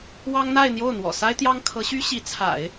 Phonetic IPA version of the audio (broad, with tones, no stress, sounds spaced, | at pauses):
w ɑ˥ ŋ n̪ a˥˧ ɪ̯ n̪ j o˥˩ ʊ̯ n̪ w ɔ̰˨˩ s a˥ ɪ̯ t̪ j ɑ˥ ŋ kʰ ɤ˧˥ ɕ y˥ ɕ i˧˥ t͡sʰ a̰˨˩˦ ɪ̯